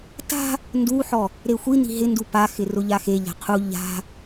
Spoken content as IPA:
t a̤ | n d u ħ ɔ | ɾ e xʷ i n i̤ ɦ ɪ n d u p a x ɪ r ʊ ʎ a x e ʎ a̤ qʰ u ʎ a̤

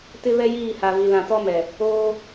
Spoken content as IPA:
t ɪ˦ β ɛ˦ j iː˦˨ h a˨ v i˨ l ã˨ t ɔ˦ m ɛ˨ | oː˦

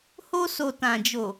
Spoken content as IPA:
h o˧ s o˨ t ã˨ d͡ʒ o˨

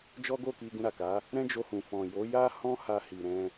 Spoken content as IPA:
d͡ʒ ɔ˦ ɡ o˦˨ k i˧ ɡ ũ˧ ɾ a˨ k a˨˦ | ɾ ɛ̃˦ d͡ʒ o˧ h ũ˨ f ɔ̃˨ j o˨˦ j a˦ h ɔ̃˦ h a˧ h i˨ ɾ ɛ̃˧

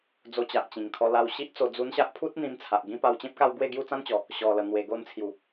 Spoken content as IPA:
d͡z o˧ t͡ɕ a˨ ʔ t͡ɕ ĩ˨˩ ŋ kʰ ɔ˧ l a˧ w ɕ i˦ ʔ t͡s o˧ d͡z u˧ n ɕ a˦ ʔ pʰ u˦ t̚ n̪ ĩ˧ m t͡sʰ a˨ ʔ ɡ ĩ˦ p a˧ w t͡ɕ ẽ˦ p̚ k a˥˧ w ɡ w e˥˧ ɡ j u˥˧ t͡s ã˦ n t͡ɕ ɔ˨˩ | ɕ ɔ˨˩ l ə˨˩ n̪ w e˨˩ ɡ o˧ n t͡sʰ j u˨˩

